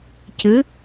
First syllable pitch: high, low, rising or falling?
rising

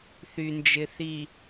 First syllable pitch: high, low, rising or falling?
low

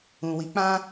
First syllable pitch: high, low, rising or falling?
low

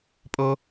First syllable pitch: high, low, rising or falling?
high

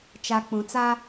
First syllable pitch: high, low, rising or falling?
low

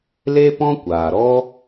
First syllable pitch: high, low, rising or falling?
high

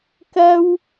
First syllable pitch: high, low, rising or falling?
high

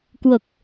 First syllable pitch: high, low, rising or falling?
low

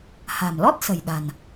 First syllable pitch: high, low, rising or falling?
low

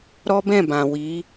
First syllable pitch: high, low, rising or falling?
high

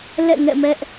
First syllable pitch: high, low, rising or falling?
falling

